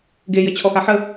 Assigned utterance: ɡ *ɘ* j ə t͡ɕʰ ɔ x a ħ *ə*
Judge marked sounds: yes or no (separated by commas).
no, yes